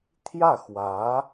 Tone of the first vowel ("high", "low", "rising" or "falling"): falling